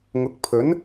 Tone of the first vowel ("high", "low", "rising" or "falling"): rising